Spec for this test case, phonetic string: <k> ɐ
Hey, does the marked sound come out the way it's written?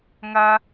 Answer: no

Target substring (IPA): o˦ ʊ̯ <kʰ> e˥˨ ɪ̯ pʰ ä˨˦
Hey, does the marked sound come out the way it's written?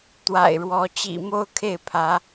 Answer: yes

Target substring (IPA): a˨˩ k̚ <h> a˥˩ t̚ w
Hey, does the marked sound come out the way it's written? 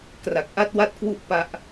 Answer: no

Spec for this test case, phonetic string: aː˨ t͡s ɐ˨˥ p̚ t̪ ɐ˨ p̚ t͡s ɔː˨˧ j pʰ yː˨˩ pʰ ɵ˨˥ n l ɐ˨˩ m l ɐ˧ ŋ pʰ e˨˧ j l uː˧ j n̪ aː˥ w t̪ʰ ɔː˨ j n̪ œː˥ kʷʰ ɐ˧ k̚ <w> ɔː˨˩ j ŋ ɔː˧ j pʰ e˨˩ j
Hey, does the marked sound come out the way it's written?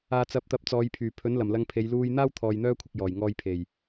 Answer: no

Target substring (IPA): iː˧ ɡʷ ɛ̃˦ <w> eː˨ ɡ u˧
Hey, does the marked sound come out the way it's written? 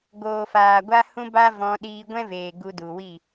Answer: no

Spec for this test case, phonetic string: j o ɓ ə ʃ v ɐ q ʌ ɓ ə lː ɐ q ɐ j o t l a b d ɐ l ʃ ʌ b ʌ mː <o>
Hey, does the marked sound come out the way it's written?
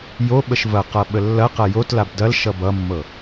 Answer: no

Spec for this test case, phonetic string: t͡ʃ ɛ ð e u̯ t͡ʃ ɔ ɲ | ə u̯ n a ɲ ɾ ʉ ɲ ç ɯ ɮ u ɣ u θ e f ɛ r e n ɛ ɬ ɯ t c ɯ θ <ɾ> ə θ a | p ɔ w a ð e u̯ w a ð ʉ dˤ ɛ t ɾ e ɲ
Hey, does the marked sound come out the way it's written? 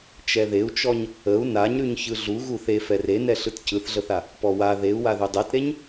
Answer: no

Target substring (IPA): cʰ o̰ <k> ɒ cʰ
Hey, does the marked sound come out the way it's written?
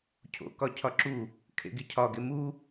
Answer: yes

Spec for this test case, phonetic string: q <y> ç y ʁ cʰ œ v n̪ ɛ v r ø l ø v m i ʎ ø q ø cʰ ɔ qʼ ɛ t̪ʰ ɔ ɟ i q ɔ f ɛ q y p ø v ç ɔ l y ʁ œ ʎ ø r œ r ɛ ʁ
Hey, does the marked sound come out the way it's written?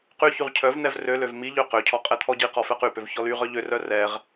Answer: yes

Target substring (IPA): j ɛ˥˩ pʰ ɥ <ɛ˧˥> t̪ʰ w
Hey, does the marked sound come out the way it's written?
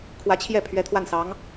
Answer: yes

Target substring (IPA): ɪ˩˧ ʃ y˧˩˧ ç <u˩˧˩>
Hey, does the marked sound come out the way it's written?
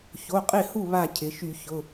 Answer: no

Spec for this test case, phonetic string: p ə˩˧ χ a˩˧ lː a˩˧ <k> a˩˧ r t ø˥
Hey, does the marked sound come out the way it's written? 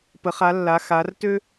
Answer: no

